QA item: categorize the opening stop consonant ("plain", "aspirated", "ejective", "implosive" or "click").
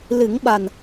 implosive